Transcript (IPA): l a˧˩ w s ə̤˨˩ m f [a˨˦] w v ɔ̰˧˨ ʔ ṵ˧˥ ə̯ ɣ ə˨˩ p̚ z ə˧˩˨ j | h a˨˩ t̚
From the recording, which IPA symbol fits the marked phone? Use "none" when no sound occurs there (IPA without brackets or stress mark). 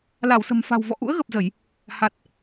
a̤˨˩